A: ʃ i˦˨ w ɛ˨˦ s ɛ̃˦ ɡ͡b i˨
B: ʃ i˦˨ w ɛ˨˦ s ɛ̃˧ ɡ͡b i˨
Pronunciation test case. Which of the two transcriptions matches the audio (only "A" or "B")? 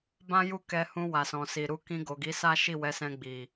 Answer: B